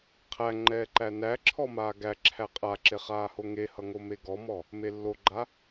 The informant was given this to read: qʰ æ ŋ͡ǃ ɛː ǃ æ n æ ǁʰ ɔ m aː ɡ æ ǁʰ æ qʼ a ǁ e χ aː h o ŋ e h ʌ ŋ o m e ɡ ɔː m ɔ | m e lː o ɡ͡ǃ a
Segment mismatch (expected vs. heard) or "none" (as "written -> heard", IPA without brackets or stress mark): ɔː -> ɔ